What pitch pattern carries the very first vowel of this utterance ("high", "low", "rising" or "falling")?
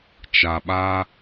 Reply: low